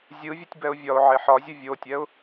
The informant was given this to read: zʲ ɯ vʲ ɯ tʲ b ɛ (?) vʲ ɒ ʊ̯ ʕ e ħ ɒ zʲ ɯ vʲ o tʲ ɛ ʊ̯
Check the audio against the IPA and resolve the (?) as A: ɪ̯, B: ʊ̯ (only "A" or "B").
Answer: B